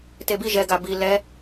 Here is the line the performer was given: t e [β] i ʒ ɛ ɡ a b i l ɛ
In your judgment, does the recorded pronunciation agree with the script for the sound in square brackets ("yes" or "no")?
no